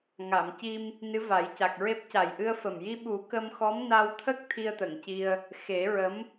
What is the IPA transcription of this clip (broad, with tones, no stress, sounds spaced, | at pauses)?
ŋ a˨˩˨ m c i˧ m | n ɨ˧˥ v a˨˩˦ j c a˨˩ k̚ ɹ e˦˥ p̚ c a˨˩ j ʔ ɨ˧ ə̯ f ə˨˩ m j i˧ ɓ u˨˩˦ k ə˧ m x ɔ˧˥ m n a˧ w t̪ʰ ə˦˥ k̚ t̪ʰ i˧ ə̯ t̪ ə˨˩˨ ŋ c i˧ ə̯ | x e˨˩˦ ɹ ə˧˥ m